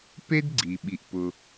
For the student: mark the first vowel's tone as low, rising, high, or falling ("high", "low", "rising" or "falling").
high